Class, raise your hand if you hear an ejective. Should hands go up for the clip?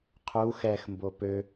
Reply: no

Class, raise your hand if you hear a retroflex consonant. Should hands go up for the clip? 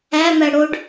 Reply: yes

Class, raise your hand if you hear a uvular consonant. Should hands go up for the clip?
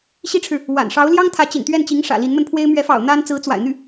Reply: no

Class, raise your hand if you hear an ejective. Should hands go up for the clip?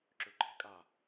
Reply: yes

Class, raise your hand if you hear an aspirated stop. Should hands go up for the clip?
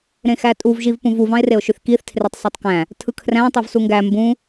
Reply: yes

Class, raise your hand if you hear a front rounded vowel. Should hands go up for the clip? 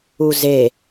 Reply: no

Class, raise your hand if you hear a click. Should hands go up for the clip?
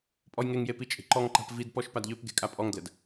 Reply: yes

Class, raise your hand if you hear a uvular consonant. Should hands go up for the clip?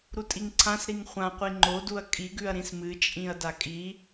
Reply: yes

